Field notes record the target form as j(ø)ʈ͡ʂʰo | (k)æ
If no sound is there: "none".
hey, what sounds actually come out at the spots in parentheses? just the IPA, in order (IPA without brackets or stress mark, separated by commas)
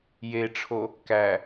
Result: e, k